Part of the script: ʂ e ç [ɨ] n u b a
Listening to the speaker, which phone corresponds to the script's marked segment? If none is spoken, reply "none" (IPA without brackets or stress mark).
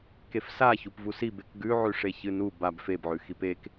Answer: ɨ